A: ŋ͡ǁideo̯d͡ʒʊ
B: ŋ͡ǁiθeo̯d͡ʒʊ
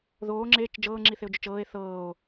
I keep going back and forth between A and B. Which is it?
B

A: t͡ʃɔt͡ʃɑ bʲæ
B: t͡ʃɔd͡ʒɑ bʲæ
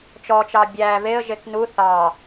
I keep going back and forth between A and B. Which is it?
A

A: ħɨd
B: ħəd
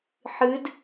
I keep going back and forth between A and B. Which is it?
A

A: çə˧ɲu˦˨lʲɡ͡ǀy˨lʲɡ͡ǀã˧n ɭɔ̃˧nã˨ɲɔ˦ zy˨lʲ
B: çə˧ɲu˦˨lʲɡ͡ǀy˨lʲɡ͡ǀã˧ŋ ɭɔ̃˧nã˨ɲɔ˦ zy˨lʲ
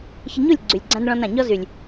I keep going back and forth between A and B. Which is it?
A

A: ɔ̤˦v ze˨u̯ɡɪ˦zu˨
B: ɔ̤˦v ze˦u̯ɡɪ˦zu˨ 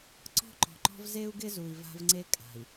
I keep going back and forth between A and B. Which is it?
B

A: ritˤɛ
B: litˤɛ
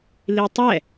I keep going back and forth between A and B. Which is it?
B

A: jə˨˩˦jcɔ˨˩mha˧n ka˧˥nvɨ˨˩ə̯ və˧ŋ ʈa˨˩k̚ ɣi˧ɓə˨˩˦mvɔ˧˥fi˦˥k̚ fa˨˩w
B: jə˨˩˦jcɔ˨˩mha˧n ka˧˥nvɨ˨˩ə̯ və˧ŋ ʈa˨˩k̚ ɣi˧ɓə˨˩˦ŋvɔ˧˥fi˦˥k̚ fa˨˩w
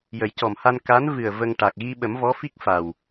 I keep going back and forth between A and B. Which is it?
A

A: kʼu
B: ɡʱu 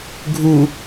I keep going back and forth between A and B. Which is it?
B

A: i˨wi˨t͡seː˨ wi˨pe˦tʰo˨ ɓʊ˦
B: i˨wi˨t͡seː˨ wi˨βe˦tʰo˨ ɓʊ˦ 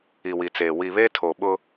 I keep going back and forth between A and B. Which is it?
B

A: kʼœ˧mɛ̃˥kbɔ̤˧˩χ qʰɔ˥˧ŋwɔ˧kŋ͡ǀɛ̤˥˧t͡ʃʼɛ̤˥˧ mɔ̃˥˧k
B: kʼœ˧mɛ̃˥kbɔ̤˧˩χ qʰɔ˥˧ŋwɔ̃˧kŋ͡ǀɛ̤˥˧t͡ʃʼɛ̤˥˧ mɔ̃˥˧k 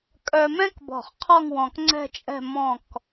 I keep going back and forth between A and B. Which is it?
B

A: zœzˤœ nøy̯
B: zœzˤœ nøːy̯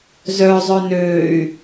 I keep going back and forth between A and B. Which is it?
B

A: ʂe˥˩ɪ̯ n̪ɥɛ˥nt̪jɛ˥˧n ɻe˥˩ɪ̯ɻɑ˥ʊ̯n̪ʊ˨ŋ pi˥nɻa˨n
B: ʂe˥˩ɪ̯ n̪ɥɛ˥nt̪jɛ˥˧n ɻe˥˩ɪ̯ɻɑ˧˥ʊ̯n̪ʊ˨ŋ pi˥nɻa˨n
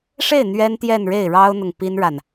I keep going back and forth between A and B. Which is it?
A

